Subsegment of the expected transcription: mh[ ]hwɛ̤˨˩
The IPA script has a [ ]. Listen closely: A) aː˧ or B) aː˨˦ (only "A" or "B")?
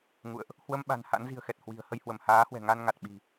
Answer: B